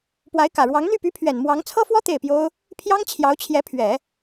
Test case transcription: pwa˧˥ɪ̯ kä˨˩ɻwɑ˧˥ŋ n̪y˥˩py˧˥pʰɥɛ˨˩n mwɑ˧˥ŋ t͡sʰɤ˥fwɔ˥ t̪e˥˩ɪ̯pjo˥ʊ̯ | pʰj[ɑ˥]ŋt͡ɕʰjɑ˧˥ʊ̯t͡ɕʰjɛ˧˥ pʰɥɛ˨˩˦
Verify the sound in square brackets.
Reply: correct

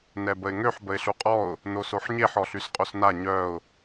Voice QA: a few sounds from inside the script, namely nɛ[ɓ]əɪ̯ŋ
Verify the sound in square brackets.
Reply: incorrect: b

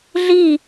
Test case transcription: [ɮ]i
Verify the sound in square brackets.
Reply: correct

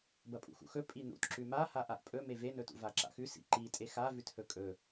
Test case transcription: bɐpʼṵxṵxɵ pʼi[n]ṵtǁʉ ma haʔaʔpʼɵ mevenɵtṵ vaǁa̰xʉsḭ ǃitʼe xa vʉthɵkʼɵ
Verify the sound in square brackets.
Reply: correct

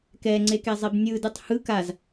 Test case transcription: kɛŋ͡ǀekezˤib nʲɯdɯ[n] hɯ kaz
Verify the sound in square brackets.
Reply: incorrect: tˤ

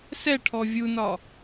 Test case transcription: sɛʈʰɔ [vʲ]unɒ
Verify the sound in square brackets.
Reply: correct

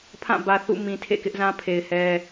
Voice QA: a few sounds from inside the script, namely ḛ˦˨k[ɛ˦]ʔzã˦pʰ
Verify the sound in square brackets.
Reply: incorrect: ɪ˦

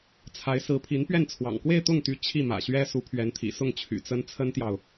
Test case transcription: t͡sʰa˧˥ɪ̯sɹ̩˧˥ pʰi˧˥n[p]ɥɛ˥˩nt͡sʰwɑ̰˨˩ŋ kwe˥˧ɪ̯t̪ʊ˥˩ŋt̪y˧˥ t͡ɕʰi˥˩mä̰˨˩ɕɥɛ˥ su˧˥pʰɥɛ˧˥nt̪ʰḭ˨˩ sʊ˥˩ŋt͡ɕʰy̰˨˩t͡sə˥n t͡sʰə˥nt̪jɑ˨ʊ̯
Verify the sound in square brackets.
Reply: correct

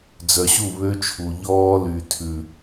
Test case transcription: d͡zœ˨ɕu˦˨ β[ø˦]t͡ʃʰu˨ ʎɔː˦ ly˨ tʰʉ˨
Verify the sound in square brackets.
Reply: correct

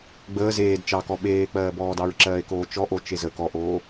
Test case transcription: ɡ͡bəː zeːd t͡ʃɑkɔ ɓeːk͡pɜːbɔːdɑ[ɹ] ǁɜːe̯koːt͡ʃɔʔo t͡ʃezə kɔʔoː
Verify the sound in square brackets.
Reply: correct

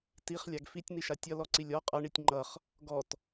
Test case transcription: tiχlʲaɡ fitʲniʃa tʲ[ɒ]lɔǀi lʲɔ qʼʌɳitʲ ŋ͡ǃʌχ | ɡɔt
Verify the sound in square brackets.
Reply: incorrect: ʌ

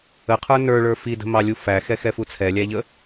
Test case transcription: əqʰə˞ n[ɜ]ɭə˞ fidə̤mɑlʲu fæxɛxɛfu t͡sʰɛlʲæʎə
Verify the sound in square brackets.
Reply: incorrect: ə˞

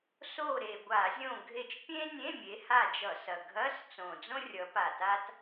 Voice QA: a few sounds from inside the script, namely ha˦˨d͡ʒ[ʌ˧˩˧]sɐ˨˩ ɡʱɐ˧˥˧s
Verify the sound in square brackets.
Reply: correct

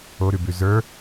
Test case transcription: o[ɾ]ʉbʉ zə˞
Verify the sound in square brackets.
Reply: correct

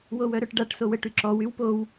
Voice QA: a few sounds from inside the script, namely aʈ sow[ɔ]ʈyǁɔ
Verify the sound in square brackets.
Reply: incorrect: ə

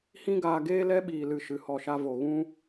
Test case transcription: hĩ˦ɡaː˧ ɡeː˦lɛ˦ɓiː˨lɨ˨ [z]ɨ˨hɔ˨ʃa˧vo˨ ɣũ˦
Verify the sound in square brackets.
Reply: incorrect: ʃ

